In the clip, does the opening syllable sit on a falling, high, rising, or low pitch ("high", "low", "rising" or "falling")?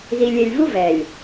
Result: low